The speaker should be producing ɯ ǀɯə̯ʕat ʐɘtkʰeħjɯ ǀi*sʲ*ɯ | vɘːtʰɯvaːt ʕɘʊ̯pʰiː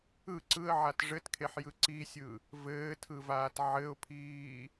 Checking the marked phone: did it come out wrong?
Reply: no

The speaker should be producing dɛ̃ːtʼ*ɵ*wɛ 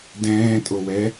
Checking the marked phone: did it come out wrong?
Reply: yes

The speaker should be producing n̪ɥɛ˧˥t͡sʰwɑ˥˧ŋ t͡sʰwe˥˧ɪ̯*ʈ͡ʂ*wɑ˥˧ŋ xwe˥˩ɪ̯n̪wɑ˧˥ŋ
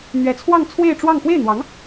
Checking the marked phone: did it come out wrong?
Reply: no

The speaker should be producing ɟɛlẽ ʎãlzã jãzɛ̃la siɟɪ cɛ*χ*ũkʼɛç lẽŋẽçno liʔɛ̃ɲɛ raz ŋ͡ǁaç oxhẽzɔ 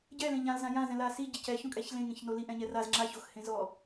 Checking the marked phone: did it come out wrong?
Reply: yes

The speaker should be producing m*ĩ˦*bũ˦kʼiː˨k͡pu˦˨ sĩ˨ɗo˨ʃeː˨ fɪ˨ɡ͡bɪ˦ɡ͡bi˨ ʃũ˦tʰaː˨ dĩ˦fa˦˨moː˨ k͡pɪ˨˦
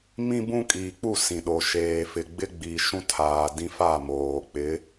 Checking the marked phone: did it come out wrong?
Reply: no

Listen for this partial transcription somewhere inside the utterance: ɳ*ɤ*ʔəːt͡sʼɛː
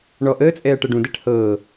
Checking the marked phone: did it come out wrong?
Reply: yes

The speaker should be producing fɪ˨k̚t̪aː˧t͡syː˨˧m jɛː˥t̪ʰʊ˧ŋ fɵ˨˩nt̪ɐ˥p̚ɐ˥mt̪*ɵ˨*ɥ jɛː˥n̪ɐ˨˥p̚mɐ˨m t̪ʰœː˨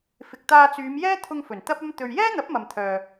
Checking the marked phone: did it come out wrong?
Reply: yes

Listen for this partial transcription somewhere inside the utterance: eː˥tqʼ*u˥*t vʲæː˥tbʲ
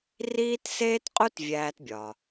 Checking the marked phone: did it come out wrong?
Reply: no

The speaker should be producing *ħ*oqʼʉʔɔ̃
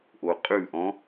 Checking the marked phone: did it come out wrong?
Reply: yes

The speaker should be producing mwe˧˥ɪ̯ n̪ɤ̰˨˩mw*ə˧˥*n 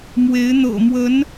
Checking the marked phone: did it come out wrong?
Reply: no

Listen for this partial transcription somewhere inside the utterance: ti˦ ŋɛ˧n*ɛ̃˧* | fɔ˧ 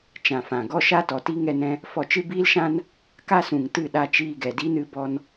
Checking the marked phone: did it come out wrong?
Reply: no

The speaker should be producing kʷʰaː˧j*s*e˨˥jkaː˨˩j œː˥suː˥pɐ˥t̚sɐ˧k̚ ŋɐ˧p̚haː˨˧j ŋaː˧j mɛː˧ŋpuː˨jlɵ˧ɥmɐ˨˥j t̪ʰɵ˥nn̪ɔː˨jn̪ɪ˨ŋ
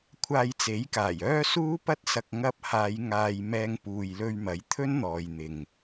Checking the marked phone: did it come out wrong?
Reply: yes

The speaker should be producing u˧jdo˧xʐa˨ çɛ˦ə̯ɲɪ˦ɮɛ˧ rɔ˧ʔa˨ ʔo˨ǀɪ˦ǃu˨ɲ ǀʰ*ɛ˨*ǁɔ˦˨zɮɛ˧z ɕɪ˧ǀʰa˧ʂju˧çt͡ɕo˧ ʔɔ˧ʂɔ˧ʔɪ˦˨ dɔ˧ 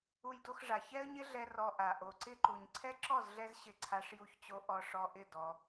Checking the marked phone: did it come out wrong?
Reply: yes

